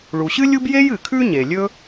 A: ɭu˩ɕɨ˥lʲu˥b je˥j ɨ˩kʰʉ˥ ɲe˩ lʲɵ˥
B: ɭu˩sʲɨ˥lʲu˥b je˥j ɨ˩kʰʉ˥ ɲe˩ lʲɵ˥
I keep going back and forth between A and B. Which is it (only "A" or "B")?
A